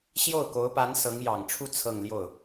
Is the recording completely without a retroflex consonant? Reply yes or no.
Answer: no